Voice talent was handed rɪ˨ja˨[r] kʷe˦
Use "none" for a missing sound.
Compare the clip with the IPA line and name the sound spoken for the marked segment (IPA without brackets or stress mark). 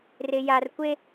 r